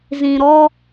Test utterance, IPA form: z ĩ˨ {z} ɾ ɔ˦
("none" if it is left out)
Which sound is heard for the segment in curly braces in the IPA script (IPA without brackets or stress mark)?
none